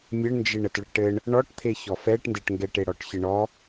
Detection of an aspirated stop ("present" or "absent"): present